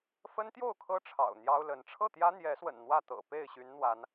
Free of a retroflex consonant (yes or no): no